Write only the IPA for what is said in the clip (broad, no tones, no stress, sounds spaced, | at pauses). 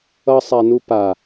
ʌ sˤ æ n u p a